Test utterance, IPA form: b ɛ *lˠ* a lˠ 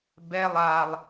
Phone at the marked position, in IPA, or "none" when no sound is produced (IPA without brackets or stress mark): lˠ